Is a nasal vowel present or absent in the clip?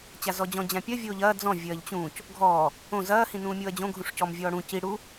present